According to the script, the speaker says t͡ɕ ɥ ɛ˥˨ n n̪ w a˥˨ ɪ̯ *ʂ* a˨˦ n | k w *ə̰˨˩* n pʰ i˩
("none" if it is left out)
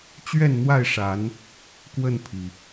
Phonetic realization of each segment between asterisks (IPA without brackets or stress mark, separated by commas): ʂ, ə˥˨